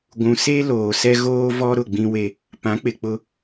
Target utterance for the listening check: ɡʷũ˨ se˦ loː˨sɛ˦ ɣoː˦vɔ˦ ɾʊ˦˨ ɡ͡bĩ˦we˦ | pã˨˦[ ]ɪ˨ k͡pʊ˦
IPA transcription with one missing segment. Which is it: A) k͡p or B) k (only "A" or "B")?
A